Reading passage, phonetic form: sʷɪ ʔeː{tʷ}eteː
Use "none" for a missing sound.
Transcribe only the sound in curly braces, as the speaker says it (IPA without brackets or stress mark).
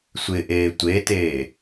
tʷ